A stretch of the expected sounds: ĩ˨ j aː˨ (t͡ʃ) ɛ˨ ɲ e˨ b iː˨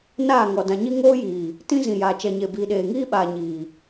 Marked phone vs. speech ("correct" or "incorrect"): correct